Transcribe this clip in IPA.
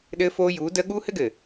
ɗ ɘː˦ f oː˦ j uː˨˦ d əː˦ ɠ uː˦ h ɘ˦ ɡ ɘ˨

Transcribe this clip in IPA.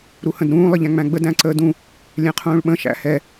ɾ u h ə̃ d ɾ ũː lˠ ə ʎ æ̃ ŋ͡m æ̃ ɡ͡b ə d æ̃ ǀ əː d ũ | lʲ ɛ̃ qʰ ũː ɭ ɓ ə̃ ʃ æ̰ h ɛ

